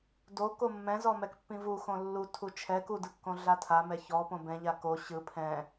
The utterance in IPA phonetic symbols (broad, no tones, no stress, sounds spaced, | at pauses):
d o k o mː ɛ̃ z ɔ m ɛ k pː ĩ v u x õ lː u tʰ u t͡ʃʰ ɛ k u d ɯ kː õ ɮ a tʰ a m ɛ ç ɔ p õ b ɛ̃ ʎ a k o ɕ ɯ pʰ ɛ̃